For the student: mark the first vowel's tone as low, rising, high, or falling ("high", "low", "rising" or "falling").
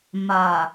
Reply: low